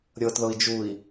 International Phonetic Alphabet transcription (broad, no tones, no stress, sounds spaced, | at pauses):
ɾʲ ɤ t ð ɤ i̯ d͡ʒ u i̯